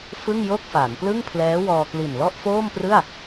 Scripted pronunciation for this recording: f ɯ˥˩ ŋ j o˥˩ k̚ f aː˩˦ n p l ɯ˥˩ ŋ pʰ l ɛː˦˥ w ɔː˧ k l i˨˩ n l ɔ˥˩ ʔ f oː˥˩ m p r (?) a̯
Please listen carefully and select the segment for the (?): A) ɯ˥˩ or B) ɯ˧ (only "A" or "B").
A